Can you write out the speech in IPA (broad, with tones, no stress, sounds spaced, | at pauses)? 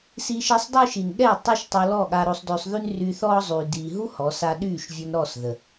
s iː˧ ʃ e˧ sˤ dˤ ø˦ ʃ i˨ n ɠ ɛ˦˨ tˤ i˦ ʃ tˤ o˧ l ɔ˦˨ ɠ a˧ ɾ o˧ sˤ d ø˧ sˤ ð y˦ n r yː˧ θ ɔː˦ zˤ yː˨ d iː˨ ɦ u˦ h ɔ˨˦ s a˧ ɗ yː˦˨ ʃ vʲ o˧ n ɾ ɔ˦˨ s ð ə˨